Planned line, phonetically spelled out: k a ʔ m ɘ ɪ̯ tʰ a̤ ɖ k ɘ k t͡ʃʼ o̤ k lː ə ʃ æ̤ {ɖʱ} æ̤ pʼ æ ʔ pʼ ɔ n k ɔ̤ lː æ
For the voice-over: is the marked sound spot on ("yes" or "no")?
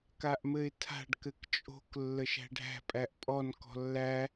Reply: yes